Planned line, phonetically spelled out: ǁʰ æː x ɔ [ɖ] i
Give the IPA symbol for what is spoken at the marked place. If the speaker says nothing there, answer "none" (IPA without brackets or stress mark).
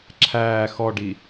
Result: ɖ